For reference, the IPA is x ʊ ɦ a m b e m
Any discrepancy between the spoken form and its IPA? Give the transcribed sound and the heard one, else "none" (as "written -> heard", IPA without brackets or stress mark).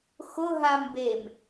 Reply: none